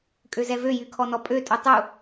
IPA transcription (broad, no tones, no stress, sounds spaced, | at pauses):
kʼ ø z ɛ v ø j y kʰ ɔ n ɔ pʼ ø tʼ u tˤ u